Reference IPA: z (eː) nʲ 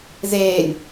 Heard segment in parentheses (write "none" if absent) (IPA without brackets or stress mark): eː